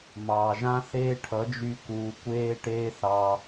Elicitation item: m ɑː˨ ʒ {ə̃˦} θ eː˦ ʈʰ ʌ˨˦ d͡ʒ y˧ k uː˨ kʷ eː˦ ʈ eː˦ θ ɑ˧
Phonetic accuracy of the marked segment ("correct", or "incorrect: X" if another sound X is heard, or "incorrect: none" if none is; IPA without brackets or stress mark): incorrect: ã˦